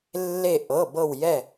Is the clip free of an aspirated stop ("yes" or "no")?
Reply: yes